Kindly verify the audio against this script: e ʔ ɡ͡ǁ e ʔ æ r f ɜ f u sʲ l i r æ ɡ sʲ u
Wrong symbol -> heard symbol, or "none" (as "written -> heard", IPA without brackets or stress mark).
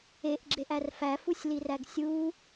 ɜ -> æ